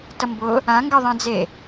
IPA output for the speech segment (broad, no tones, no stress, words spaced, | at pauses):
tʌmbʊ | ã ŋɡəðˤẽ d͡ze